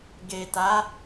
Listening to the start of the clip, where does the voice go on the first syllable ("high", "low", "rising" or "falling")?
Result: low